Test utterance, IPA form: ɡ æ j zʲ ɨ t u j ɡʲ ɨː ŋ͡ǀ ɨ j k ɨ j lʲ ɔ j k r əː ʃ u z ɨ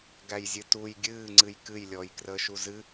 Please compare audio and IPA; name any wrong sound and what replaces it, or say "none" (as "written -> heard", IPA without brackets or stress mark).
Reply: none